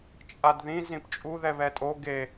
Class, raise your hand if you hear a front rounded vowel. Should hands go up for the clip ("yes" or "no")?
no